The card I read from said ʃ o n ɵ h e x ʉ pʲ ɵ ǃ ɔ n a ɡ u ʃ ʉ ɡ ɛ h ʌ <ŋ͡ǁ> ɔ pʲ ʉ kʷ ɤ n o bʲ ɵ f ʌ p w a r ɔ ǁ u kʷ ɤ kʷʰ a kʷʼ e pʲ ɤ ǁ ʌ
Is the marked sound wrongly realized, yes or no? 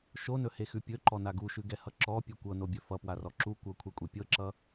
yes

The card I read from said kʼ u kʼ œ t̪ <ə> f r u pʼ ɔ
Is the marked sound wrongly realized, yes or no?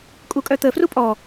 no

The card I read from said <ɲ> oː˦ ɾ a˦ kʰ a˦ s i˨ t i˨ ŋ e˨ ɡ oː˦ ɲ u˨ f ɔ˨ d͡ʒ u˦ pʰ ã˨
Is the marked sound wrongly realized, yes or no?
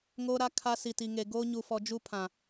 yes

